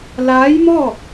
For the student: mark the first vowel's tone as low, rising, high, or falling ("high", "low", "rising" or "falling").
rising